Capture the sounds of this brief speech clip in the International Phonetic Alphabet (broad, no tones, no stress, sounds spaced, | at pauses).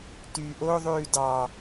t yː ʔ o ðˤ ʉː d ɑ